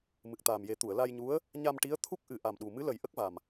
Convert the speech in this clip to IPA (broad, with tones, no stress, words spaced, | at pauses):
mɨ˨˩k̚t̪aː˨˩mje˨˩˦ t̪u˨˩˨ə̯la˧jɲu˧˥ə̯ | ɲa˧mʈi˧˥ə̯ t̪ʰu˦˥k̚ʔɨ˨˩˦ ʔa˨˩mɗu˨˩ mɨ˧˥lə˨˩˦j ʔə˦˥k̚va˨˩m